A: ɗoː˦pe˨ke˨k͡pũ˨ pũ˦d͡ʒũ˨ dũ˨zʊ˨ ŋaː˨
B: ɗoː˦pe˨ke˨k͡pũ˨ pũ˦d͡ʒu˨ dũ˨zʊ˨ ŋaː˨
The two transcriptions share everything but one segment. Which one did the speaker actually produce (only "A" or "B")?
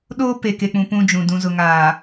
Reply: A